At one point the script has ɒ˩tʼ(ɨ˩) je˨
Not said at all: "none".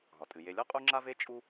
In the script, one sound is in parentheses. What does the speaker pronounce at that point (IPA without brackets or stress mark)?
ɨ˩